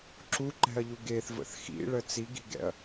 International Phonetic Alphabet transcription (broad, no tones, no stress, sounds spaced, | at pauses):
ǁ u ǃ ɛ̤ ɐ̯ ʎ u ɡ e θ v ə̰ θ x ḭ ɭ ə t͡s i ɡ i̤ ɡ ɛ̰ ɐ̯